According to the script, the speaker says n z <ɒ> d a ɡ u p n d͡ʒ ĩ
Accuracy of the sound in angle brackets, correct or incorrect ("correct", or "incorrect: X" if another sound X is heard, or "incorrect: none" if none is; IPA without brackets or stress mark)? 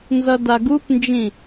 incorrect: ʌ